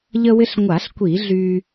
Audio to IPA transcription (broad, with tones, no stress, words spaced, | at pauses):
ʎə˧wɪ˧ɬŋʷa˧˩˧ɬkʷi˧˩˧ ɮy˧